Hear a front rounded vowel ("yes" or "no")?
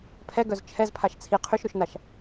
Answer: yes